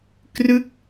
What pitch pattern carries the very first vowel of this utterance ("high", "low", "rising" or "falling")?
falling